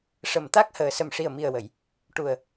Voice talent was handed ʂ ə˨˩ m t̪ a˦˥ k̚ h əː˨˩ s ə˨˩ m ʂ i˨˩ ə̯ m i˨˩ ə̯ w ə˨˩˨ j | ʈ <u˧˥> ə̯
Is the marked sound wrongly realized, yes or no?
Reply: yes